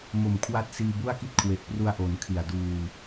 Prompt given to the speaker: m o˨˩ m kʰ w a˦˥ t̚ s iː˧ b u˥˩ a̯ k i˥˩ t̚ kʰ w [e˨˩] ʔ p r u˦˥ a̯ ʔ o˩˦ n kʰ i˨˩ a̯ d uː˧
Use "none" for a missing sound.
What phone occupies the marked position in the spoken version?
e˨˩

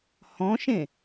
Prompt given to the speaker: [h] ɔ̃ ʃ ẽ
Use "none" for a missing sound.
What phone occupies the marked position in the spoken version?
h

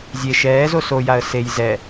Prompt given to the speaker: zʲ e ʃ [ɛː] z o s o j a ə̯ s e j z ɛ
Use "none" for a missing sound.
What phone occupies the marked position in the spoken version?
ɛː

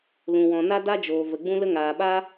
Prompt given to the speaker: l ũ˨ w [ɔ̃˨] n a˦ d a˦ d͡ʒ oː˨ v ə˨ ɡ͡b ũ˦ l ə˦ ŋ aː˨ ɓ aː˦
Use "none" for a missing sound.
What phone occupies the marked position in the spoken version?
ɔ̃˨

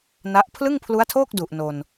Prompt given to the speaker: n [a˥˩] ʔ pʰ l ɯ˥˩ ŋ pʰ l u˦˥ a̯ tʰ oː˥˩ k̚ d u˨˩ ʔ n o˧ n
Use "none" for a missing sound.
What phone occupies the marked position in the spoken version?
a˦˥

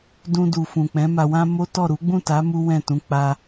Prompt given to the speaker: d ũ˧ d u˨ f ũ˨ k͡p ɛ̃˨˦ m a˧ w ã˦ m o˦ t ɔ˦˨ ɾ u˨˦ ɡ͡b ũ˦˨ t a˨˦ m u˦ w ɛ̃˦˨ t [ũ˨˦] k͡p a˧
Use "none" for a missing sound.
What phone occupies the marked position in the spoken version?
ũ˨˦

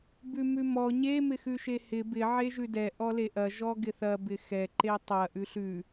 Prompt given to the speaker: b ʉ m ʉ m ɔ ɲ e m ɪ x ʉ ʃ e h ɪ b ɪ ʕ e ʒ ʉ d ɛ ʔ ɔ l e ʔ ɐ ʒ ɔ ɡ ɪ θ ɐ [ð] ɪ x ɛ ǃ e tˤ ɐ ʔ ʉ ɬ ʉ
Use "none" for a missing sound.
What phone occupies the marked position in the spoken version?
b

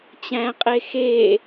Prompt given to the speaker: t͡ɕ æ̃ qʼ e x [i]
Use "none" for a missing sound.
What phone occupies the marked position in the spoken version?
e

